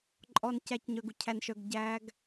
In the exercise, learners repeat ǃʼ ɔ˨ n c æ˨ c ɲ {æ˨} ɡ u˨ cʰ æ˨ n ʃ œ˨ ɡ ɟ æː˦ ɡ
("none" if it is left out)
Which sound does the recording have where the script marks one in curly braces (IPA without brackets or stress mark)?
œ˨